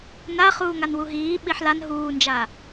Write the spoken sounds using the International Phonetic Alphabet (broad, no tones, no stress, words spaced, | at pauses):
naχuːŋan wuɦiː ɓiħlan ɦuːnd͡ʒa